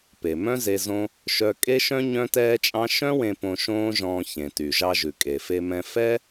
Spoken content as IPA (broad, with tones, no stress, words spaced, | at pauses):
pe˩mœ̃˥ze˧ zõ˥ | ʃœ˧ kʼe˥ʃœ̃˥ ɲœ̃˥tɛː˥t͡ʃʼɑ̃˥ ʃœ̃˥wẽ˧ põ˧ ʃõː˥ʒɔ̃ː˧ çẽ˩ty˩ʒɑ˧ʒʉ˩ kʼe˩fe˧mɛ̃˧ fɛ˥